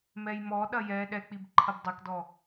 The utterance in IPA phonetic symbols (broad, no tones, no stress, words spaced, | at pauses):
mɛjmɔɗɐ jɛ ɗɛk͡pib ǃʰɐbdˤɛkdɔ